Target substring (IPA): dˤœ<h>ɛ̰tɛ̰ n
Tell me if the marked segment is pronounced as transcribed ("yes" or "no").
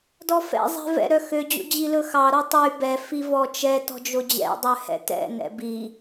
yes